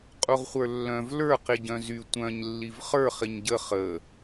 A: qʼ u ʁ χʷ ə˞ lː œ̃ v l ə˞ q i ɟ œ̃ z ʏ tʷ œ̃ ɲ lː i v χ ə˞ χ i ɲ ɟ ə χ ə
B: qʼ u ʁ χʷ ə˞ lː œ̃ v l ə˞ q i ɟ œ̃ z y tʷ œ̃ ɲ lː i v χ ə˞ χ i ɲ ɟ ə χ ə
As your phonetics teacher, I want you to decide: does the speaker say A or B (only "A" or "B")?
B